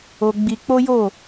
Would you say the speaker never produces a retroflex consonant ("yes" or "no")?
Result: yes